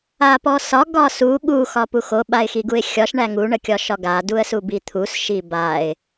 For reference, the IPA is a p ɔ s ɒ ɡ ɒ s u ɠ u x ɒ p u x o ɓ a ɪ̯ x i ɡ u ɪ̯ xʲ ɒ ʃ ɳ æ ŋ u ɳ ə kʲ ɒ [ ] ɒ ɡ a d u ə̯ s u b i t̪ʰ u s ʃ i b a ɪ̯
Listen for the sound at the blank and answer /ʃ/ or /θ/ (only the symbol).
ʃ